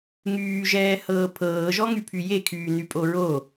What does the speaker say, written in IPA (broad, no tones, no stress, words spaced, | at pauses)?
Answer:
ŋyːʒɛː hɤːpʰɤː ʒɔŋypʰyje kʰyːnypʼoɹo